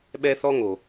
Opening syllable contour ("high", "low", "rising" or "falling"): high